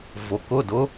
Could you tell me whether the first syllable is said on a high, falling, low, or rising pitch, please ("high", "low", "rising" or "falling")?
low